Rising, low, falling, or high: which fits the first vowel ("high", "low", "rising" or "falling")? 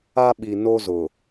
high